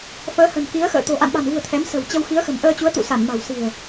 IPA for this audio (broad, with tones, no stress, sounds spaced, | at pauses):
f əː˨˦ h ə̤˨˩ n k i˨˦ ə̯ x ə̰ː˧˨ t̪ o̤˨˩ ʔ a̰˧˨ n ɓ a̤˨˩ n v ṳ˨˩ ə̯ t̪ʰ ɛ˨˦ m s ə̤˨˩ w t͡ɕ ə˧ w x i˨˦ ə̯ x ə̤˨˩ m ʔ əː˧ t͡ɕ u˨˦ ə̯ t̪ ṵ˧˨ s a˧˩ n m a̤˨˩ w s i̤˨˩ ə̯